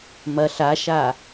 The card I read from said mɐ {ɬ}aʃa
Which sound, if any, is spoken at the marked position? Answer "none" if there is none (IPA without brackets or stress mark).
ɬ